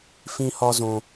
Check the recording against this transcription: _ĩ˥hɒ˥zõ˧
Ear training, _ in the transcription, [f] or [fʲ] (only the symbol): f